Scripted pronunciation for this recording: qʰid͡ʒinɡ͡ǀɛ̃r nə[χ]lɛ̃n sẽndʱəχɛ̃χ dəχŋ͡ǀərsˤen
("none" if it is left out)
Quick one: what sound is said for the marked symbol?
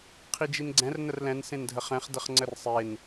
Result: r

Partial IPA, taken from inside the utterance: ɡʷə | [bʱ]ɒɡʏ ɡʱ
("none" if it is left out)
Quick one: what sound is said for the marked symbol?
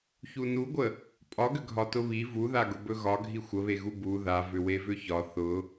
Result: pʼ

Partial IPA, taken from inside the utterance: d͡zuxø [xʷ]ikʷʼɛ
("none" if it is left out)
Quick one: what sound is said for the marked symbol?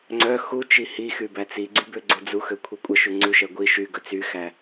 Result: kʷʰ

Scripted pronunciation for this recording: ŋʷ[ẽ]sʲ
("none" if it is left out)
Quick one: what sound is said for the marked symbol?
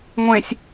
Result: ẽ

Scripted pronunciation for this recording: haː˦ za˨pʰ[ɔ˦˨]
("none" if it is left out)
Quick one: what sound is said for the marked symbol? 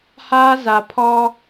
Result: ɔ˦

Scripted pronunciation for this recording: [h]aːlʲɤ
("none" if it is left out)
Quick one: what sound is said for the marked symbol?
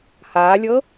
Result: h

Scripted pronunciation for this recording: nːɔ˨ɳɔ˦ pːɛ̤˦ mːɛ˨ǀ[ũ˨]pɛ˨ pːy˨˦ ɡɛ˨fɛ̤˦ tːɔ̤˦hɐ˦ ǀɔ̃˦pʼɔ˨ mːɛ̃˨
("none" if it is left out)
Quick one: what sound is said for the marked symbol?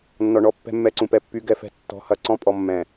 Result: ũ˨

